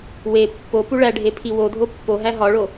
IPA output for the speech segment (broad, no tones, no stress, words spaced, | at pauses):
we pːo puɭæɖʱe pʰiwodʱo pːo ɦæɦɒɭo